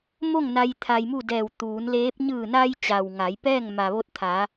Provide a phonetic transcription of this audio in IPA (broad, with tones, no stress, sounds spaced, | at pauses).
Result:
m o˥˨ ŋ n a˧ j t̪ʰ a˧ j m u˥˨ d ɛː˧˩ w t̪ uː˩˧ n l eː˧˥ p̚ ɲ ɯː˧˩ n a˧ j t͡ɕ a˩ w ŋ a˩˧ j p ɛː˥˨ ŋ m a˩ ʋ o˧ t̚ t̪ʰ a˩˧